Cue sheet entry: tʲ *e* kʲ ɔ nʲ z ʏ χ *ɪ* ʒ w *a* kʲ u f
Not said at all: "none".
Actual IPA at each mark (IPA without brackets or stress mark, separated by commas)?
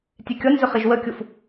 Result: e, ɪ, ə